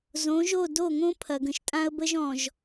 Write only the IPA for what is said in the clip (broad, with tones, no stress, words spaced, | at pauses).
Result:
zõ˨˦ʒo˦˨ do˦˨ŋõ˦ pʰɐ˨ɡə̃˨ʃtʼã˦ə̯bə˦ʒ ɔ̃˨ʒ